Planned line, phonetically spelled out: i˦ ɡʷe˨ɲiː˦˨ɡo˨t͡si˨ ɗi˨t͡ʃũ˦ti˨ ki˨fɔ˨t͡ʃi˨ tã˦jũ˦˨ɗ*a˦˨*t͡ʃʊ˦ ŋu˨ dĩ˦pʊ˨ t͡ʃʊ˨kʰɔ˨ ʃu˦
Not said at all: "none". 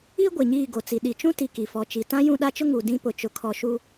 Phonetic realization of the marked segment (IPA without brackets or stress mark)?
a˦